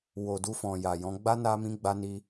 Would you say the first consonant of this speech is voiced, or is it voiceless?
voiced